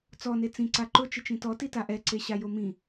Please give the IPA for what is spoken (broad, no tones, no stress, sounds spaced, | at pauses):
t͡s ɔ n e t͡s ĩ ǀ a ǃ ʊ t͡ʃ ɪ t͡ʃ ĩ t ɔ t i t a ʔ ɛ ǀ e ɕ a j o m ĩ